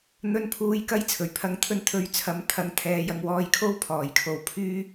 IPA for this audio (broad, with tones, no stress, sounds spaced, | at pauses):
n̪ ɵ˨˧ n pʰ uː˨˧ j k ɐ˧ j t͡sʰ ɵ˨˩ ɥ pʰ ɐ˨˧ ŋ t̪ʰ ɵ˧ n t̪ʰ ɵ˧ ɥ t͡sʰ ɐ˨˥ m t̪ʰ ɐ˨˥ ŋ t̪ʰ ɛː˨˧ j ɐ˧ ŋ w ɔː˧ j kʰ o˥ w pʰ ɔː˨˩ j kʰ o˨ w pʰ yː˥